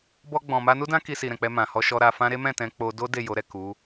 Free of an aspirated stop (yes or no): yes